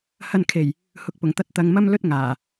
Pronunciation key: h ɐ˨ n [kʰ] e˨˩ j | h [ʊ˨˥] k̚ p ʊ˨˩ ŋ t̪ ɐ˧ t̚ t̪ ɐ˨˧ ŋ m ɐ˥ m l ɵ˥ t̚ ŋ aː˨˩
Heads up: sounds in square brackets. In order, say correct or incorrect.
correct, correct

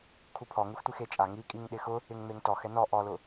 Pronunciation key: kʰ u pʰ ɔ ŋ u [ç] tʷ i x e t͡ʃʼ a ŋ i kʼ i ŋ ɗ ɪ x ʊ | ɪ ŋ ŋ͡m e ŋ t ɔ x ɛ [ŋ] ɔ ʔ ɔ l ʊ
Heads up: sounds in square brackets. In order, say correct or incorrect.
incorrect, incorrect

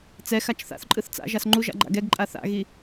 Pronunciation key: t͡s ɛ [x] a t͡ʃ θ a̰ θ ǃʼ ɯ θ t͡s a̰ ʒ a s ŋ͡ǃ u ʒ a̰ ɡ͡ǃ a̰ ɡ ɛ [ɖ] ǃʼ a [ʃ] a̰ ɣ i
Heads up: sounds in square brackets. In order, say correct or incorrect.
correct, incorrect, incorrect

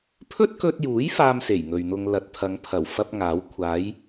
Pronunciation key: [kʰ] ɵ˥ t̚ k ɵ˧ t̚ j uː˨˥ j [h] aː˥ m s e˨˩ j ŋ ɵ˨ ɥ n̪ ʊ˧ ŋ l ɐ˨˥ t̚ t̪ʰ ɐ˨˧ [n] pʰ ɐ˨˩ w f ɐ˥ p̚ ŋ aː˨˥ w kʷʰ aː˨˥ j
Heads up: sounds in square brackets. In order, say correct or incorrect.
incorrect, incorrect, incorrect

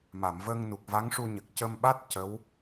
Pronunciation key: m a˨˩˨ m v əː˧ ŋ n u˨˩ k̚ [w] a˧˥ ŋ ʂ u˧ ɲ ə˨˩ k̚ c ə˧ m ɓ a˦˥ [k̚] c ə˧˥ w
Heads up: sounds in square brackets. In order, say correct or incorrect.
incorrect, incorrect

